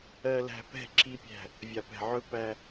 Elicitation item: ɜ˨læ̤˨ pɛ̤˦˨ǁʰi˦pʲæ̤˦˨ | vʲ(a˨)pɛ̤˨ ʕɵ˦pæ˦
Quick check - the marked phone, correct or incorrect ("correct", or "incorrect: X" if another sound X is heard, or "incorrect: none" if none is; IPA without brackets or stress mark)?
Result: correct